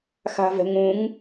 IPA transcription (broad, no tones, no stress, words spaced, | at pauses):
xa̤vɛ̤ŋũŋ